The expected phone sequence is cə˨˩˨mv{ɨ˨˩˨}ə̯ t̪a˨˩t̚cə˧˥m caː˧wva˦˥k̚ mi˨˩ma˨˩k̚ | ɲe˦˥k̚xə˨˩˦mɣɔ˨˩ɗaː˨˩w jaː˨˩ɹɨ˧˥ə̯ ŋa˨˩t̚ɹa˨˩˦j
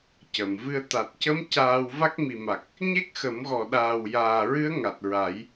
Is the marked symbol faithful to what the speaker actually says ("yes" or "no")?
no